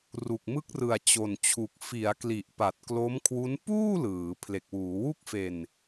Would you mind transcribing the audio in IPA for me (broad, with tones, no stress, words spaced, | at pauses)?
ru˨˩k̚mɯ˦˥k̚rɯ˨˩a̯ t͡ɕo˨˩nt͡ɕʰu˨˩k̚ fi˩˦a̯kli˨˩ʔ pa˨˩t̚klo˦˥mkʰwu˦˥n puː˥˩ lɯː˩˦ pʰle˨˩k̚wuː˩˦ wu˥˩k̚fe˧n